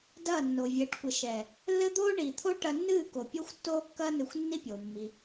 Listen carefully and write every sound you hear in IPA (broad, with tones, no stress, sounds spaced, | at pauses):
d ɐː˦˨ nː o˨ vʲ ɘː˨˦ ʈ kʷ ɘ˨ ʃ ɛː˨ | lː ɘ˦ d̪ oː˦ ɳ iː˨ t̪ʰ o˦ ʈ ɐ˧ nː ɨː˦˨ k o˨ pʲ o˦ xʷ tː oː˦ kː ɐː˦ n ɨ˧ xʷ nː i˦ pʲ oː˨ mː i˧